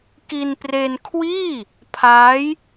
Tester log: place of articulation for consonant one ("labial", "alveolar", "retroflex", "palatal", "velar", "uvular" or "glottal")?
velar